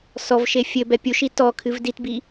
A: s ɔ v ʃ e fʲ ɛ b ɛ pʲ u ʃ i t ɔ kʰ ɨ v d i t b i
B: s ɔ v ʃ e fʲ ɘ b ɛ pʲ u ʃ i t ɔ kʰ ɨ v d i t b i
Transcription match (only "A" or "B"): B